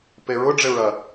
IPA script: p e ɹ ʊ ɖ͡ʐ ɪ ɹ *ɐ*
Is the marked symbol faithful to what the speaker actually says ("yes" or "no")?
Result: yes